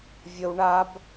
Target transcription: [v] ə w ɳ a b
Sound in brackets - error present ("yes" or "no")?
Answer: yes